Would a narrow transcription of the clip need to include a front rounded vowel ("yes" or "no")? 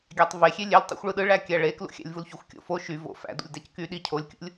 yes